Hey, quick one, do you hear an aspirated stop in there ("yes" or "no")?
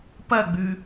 no